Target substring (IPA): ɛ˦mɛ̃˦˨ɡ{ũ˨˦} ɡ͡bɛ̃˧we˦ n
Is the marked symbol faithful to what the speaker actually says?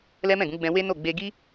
yes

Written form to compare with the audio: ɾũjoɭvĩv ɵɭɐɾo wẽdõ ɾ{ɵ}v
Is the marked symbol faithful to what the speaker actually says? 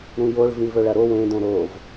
no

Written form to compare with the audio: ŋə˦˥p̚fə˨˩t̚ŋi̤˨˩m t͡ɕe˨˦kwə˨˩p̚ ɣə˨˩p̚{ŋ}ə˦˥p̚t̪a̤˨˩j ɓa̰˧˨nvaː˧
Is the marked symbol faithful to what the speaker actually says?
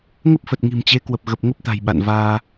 yes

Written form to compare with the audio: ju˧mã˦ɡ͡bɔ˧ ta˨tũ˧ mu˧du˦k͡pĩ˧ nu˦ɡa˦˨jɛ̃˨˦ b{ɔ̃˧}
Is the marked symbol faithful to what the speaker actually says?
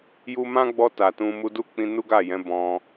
yes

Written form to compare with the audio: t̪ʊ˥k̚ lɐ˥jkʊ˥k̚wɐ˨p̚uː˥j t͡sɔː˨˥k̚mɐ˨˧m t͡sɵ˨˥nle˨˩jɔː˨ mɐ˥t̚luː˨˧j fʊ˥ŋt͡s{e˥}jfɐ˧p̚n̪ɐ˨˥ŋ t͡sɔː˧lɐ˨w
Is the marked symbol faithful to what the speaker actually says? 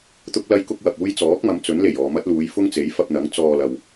no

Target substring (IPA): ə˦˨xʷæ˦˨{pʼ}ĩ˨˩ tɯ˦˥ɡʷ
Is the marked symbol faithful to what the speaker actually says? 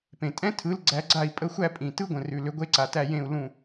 yes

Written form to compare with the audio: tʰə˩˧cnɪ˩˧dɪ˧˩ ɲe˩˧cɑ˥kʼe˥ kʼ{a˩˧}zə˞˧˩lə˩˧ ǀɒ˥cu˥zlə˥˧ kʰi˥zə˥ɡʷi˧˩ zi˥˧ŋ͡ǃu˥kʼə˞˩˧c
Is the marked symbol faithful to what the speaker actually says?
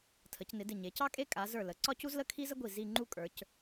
yes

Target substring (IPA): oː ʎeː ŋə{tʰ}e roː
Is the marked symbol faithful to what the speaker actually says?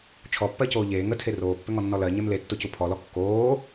yes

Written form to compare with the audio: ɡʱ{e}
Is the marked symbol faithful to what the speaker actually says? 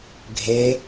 yes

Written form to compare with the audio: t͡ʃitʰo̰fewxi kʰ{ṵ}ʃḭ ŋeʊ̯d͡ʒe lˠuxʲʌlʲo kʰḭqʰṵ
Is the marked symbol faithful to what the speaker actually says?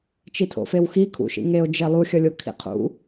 yes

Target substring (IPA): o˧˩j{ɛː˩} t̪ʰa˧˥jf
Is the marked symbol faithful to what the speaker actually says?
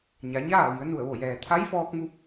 yes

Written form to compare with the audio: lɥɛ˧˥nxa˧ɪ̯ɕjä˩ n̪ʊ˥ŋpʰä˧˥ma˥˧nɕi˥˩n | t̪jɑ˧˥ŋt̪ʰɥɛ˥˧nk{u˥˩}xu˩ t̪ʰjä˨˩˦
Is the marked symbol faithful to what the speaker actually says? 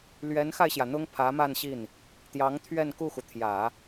yes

